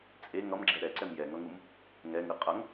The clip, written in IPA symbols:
t͡sʼ e ŋ ʌ m ɡ͡ǁ ɛ ɾ ɛ ǀ ɛ m j ɛ ŋ ʌ ŋ u m | ŋ ɛ ŋ ɯ qʼ ʌ ŋ

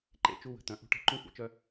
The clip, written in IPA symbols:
ǃ ḛ˨ t͡ʃ u˦ w ə̤˨ t̪ œ̃˨ ʔ ṳ˦ ʈ e̤˦ ǃ ũ˦ xʷ ḛ˨ t͡ʃ œ˦

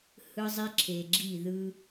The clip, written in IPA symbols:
h ɯ˦ zˤ i˦ ǁʰ e˨ ɡ͡ǁ i˦˨ ð ɯ˦

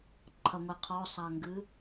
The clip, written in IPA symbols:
ǃʰ ɐ ŋʷ i qʰ ɔ sˤ a ŋ ɡ ɨ

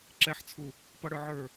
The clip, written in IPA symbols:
ǁ ɛ ħ t͡sʰ u | p ʌ ɽ ə˞ ʕ ə˞

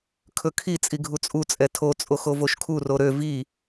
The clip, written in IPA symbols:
kʰ ɵ kʰ i t͡sʼ i ɡʱ u t͡sʼ u t͡sʼ ɛ tʰ o t͡sʼ o x o v o ʃ kʰ u r o ɾ ø v i

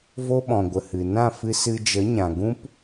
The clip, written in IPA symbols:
v o˦ ɓ ɔ̃˨ ɡʷ ə˨ h ɨ˨ n ã˦˨ f ɨ˧ s ɨ˧ d͡ʒ ə˨˦ ɲ ã˨ ɡ ũ˦ p

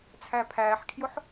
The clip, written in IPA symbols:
t͡sʰ æ pʰ æː ħ kʰ j ʊ ħ

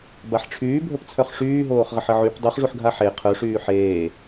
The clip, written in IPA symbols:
b a ħ ʈ͡ʂʰ yː bʱ ə p t͡sʰ œ χ ʂ yː ɦ oː χ ʁ ə ħ ə ʕ y p dˤ y χ ʐ u ħ ɡʱ a ħ e qʰ œ ʂ yː ħ eː

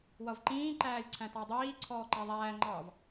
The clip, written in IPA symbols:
w ʌ v ǃ ĩː ǃ æː lʲ ǀʰ æ̃ t ɑ dˤ iː ǀʰ ɔː ǃ æ ðˤ æː ŋ͡ǃ ɑ v

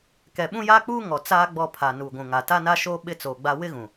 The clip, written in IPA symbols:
k ɛ˨ ɓ ũ˦ j aː˦ k͡p uː˦ ŋ ɔ˨ t͡s aː˦ ɡ͡b ɔ˦˨ pʰ a˨ n uː˨ ɡʷ ũ˨ ŋ a˨ t a˦ n a˦ ʃ oː˦ ɓ ɪ˦ t͡s oː˨ ɡ͡b a˦ w ɪ˦ ɣ ũ˨

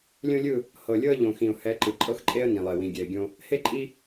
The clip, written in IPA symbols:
lʲ õ˦ lʲ ɯ˦˨ | h ɤ˨ lʲ ɤ˦ ə̯ ʎ õ˨ x ĩ˨ ʊ̯ h ɛ˨˦ ǃ ɯ˨ ǃʼ ɤ˦ x ǃʼ e˦ ə̯ n ĩ˨ lˠ e˨ w ĩ˨ ɡʲ ɛ˨ ɪ̯ ɡʲ õ˦ | h e˦ ǃʼ i˦

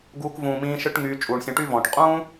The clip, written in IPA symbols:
ɡ uː˧ k v ũː˨ m ĩː˧ ʃ ɯ˦ ʈ ŋ yː˧ t͡ʃʼ uː˨ ɳ sʲ ɔ̃˧ ʈ y˦ v ɔ̃ː˨ ʈ qʼ ũː˦

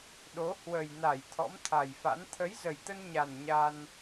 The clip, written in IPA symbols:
ɗ o˨˦ h w ə˨˩ j n a˧˩ j t̪ʰ ɔ̰˧˥ m t̪ʰ a˨˩ j f a̰˧˥ n t̪ʰ ə˨˦ j z ə˨˩ j t̪ ə˧ n ɲ a˨˩ n ɲ a˧ n

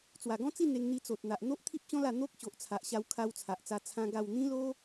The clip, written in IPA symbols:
t͡s w a˨˩ ɡ ɔ̃˦ t͡s i˥˧ n̪ e˧ ŋ n̪ i˧ t͡s o˨ t̚ n̪ a˨ ʔ n̪ o˦ ʔ t̪ʰ i˦ p̚ ɕ ɔ̃˦ l a˥˧ n̪ o˦ k̚ ɕ o˨ ʔ t͡sʰ a˨ ʔ ɕ a˧ w kʰ a˧ w t͡sʰ a˨ ʔ t͡s a˧ t͡sʰ ã˦ ɡ a˥˧ w n̪ ĩ˦ l o˦

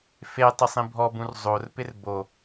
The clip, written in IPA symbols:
f e tˤ ɪ sˤ ĩ bʱ ɔ b ũ r zˤ o r p ɪ r b o

